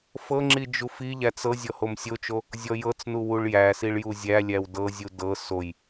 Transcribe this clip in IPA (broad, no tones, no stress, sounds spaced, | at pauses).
f ɤ ŋ͡ǁ i d͡ʒ u f i ʎ æ t͡s ɤ zʲ ɔ h o m sʲ o t͡ʃ o | zʲ ɔ j ɤ t͡s n u w u ɭ j æ s i ɭ j u zʲ æ lʲ æ w d ɤ zʲ u d ɤ s o j